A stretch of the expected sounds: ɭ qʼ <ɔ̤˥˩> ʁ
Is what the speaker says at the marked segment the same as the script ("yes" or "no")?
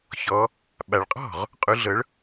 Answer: yes